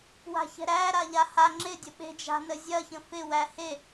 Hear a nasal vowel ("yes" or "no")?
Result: yes